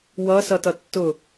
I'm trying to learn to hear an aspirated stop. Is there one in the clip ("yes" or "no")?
no